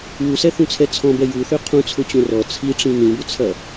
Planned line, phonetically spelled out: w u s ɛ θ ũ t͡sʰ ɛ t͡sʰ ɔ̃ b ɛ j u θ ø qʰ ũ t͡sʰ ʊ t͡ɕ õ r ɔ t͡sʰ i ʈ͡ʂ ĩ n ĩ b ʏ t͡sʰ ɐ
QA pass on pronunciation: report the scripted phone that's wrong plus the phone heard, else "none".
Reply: none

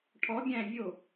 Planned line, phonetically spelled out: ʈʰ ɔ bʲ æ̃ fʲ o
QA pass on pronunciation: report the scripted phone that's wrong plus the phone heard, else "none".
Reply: fʲ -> vʲ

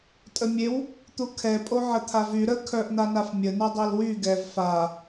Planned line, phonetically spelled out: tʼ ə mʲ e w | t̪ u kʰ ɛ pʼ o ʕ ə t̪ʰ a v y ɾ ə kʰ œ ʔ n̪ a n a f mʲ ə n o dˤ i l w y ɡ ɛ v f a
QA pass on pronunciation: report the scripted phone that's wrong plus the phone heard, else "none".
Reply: none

